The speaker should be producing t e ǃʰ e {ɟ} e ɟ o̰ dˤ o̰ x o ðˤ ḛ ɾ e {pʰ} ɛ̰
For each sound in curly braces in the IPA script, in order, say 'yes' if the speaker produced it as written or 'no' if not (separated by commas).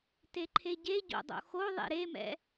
yes, no